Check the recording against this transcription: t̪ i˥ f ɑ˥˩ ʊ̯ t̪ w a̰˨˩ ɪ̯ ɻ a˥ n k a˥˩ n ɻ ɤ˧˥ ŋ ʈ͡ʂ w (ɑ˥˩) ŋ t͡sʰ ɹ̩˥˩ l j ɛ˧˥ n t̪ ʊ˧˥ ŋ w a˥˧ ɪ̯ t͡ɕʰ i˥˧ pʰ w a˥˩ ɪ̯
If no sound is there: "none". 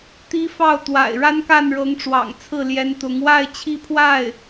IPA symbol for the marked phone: ɑ̰˨˩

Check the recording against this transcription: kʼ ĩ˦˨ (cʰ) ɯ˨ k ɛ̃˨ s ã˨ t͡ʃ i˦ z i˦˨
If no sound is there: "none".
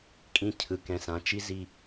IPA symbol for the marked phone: cʰ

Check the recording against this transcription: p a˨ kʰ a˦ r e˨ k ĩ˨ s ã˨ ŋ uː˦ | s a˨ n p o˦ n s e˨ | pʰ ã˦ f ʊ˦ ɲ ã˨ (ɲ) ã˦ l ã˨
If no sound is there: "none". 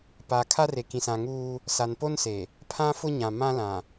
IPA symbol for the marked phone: m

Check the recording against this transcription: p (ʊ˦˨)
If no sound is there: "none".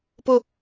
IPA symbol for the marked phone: ʊ˦˨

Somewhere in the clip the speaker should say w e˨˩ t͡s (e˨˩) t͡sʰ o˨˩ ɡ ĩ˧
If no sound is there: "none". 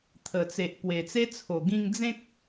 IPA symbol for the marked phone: e˦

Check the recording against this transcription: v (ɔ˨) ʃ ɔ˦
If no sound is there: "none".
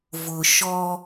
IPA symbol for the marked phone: ʊ˨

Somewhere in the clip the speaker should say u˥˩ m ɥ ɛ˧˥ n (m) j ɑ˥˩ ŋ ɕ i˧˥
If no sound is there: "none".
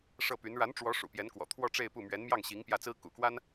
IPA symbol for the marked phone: m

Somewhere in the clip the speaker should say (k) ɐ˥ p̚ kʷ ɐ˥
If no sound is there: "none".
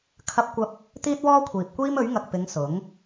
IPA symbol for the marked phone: kʰ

